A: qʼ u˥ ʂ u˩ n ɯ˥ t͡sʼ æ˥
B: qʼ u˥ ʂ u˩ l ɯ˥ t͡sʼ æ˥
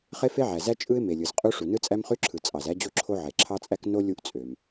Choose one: A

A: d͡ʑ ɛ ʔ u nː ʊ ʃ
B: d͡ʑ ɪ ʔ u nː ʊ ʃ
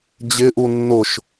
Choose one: B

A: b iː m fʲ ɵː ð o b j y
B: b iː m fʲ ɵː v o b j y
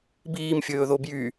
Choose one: A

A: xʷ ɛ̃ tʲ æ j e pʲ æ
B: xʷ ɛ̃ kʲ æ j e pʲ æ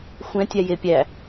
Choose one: A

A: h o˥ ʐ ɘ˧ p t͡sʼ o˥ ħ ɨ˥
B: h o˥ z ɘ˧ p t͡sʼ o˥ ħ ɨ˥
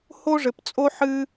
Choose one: A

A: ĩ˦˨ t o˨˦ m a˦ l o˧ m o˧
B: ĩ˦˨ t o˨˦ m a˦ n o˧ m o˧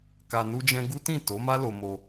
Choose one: A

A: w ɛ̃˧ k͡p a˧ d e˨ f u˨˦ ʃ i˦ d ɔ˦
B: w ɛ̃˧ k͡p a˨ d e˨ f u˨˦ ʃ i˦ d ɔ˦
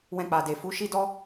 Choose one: B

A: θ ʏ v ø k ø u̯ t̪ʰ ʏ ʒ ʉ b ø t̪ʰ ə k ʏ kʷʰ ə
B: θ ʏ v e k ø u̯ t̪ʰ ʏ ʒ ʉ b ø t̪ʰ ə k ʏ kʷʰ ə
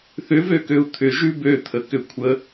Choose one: A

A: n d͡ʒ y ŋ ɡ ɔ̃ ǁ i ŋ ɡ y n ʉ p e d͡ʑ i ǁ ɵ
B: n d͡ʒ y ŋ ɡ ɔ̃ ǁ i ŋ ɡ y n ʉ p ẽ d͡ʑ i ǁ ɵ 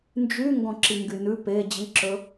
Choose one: A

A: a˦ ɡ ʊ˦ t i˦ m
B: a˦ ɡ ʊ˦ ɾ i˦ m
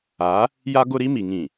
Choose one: B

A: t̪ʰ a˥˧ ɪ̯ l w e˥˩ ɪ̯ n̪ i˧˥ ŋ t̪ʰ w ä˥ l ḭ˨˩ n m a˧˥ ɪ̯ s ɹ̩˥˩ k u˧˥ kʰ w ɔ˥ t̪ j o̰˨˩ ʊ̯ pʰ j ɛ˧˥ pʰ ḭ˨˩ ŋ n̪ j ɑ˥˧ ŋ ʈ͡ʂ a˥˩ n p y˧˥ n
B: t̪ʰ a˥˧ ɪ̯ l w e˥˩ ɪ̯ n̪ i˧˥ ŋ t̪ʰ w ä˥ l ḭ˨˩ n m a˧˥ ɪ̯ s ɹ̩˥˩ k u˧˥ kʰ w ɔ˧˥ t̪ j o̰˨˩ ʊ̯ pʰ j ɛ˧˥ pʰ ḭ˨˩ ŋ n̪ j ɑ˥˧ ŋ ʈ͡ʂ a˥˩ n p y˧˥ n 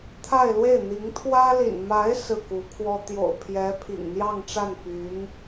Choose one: A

